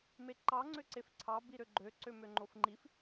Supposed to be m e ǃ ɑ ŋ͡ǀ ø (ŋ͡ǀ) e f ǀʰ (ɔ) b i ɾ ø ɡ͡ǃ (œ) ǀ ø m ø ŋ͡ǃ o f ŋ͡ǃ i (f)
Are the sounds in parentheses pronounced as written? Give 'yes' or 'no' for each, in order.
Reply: no, no, no, yes

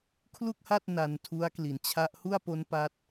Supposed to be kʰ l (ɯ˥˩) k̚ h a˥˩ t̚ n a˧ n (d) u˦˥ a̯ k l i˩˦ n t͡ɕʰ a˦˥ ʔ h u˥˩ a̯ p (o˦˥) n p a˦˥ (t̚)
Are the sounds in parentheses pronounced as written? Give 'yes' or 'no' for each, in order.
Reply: no, no, yes, yes

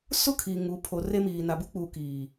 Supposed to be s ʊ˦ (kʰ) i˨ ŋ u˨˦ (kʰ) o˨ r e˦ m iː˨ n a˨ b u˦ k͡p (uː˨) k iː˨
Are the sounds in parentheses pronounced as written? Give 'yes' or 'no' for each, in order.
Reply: yes, no, yes

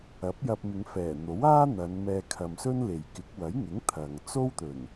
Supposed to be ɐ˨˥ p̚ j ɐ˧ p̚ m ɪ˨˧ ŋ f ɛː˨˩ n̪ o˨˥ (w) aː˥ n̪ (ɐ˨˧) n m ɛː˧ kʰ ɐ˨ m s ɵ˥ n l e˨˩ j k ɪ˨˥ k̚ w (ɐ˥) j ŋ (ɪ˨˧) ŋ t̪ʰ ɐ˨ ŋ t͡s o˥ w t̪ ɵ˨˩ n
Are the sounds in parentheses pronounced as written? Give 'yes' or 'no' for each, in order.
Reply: yes, yes, no, no

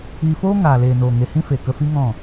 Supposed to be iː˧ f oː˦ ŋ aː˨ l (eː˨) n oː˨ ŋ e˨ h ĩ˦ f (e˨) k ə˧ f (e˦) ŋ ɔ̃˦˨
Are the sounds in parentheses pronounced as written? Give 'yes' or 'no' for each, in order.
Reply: yes, yes, no

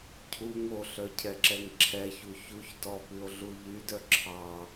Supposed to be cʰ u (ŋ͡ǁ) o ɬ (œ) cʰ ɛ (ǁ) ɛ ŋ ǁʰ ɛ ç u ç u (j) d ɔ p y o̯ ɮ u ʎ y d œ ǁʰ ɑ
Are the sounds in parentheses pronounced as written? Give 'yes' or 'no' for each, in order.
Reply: no, yes, yes, no

